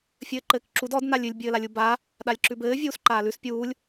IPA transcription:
fʲɘːǃɘːkǁud ɔd nalʲʉlʲ bʲɘːlalʲubaː | ɗalʲǁʉbɘː vʲuːsǃaːlʉs pʲuːlʲ

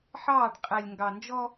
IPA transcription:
ħɑː˦˨ɖ qʼɛ˨lʲ ŋɡɑ˨nd͡ʒɔ˦

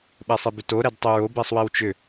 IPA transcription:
ɓɛsˤebʏto ɾɛdtˤʏɹo bɛsˤwewt͡ʃʏ

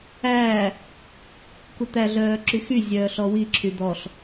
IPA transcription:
æː | kut̪æ ɮœːǁyxy zʲœːɬɔwi ǁʰyd̪ɔɬ

